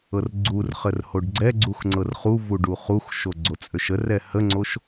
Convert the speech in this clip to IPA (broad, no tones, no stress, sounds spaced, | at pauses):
ɤ r ɡ͡ǀ u r χ ə r h o ɖ ɡ͡ǀ ɛ ɡ͡ǀ u x ŋ͡ǀ ɤ r χ u v u ɖ u χ u x ʃ o ɡ͡ǀ o t͡sʼ ø ʃ ə r ɛ h ə ŋ͡ǀ o ʃ